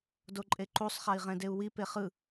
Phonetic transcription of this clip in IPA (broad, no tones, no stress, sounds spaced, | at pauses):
d o ǃʼ e ǃ u sˤ χ a i̯ ʁ ɛ̃ d e u̯ w i p e χ ɯ